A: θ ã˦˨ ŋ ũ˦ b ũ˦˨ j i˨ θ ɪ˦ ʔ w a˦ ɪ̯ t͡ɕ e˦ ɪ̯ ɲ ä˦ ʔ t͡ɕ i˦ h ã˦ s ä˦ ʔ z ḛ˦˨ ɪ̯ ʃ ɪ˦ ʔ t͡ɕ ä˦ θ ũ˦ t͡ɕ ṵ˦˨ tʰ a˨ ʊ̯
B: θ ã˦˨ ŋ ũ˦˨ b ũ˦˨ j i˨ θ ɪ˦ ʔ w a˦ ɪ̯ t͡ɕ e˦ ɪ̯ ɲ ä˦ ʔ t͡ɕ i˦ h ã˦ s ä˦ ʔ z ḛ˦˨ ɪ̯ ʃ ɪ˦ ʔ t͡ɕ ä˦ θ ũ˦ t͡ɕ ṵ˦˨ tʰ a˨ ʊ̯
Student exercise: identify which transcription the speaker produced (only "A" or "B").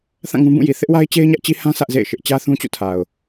A